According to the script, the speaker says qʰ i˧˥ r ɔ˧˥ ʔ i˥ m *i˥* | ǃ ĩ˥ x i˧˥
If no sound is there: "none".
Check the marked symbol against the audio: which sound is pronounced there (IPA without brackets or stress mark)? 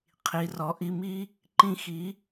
i˥